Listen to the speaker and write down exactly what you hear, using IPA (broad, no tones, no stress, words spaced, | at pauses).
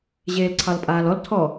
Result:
ʑeːlǀʰɑlpʼaːlɔl tʰɔ